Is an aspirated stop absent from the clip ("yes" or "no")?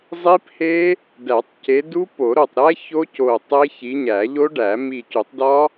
yes